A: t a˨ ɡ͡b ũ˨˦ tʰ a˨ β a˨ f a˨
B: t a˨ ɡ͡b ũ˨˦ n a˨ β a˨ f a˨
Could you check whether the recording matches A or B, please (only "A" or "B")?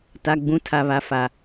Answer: A